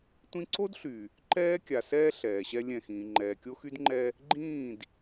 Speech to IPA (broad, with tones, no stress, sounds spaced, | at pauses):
tʷ ĩ˦ ǀ o˦ d ɬ y˨ | ǃ ɛː˦ kʲ a˨ s ɛː˦ ɬ ɛː˨ ɕ ɛ˦ lʲ ɛ̃˦˨ x ĩː˨ ŋ͡ǃ ɛː˨ kʲ o˦ x y˦ d ŋ͡ǃ ɛ˦ | ɡ͡ǃ ĩː˦˨ d